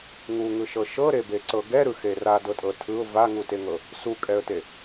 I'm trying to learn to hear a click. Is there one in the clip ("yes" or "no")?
yes